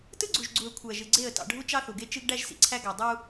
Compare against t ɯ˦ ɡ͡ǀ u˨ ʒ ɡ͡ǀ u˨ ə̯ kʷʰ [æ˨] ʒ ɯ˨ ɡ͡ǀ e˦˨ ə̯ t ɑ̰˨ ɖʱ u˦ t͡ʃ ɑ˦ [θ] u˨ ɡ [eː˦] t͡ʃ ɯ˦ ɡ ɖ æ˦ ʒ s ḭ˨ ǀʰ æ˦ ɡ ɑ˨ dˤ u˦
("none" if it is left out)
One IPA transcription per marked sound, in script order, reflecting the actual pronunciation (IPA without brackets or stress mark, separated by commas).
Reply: æ˨, θ, e˦